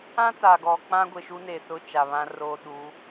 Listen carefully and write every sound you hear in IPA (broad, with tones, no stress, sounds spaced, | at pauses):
ã˦ t a˨ ɡ ɔ˨ k͡p ã˦ ɡʷ e˨ ʃ u˦ n e˨ s ʊ˦˨ t͡ʃ a˨ β ã˦ r oː˦ ɗ u˨˦